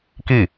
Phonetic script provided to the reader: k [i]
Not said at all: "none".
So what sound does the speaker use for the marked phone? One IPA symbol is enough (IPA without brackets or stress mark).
i